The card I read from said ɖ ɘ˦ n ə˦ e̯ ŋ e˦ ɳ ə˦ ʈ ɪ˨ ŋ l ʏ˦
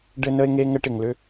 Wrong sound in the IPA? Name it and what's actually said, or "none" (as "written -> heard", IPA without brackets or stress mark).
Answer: ɳ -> ŋ